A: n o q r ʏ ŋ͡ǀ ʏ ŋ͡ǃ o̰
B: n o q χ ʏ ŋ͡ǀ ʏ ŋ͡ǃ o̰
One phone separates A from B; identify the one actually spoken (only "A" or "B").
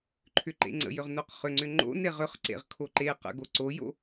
B